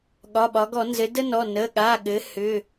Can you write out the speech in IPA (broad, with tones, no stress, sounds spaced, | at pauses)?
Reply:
ɠ ɒ˩˧˩ ɓ ɒ˩˧ ɡ ɔ˧˩˧ n z ɘ˩˧ d ə˦ n ɔ˩˧˩ n ə˩˧˩ ɠ a˩˧˩ ɠ ɘ˩˧ h ʏ˩˧˩